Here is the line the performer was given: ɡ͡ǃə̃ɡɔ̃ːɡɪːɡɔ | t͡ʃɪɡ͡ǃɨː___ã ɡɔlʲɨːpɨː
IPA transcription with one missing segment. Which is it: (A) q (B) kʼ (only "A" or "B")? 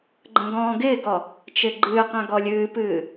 A